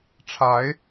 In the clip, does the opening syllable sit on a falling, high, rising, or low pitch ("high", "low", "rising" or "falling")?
rising